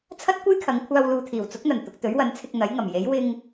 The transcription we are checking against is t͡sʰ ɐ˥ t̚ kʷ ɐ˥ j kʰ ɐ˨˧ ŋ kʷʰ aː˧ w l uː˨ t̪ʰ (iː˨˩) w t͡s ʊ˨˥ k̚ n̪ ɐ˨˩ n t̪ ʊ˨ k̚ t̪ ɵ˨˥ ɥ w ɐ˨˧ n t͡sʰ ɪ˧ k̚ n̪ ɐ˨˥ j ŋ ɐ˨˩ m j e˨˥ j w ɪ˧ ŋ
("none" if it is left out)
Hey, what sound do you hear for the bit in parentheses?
iː˨˩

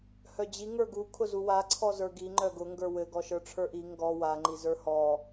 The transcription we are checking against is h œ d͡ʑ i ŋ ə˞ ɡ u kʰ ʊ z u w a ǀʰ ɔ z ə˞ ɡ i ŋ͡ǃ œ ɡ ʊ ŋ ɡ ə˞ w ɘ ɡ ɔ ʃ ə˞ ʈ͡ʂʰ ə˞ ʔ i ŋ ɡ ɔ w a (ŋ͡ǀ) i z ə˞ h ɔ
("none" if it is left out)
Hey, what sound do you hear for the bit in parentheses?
ŋ͡ǃ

